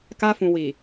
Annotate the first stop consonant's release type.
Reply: plain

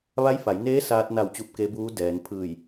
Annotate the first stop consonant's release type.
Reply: plain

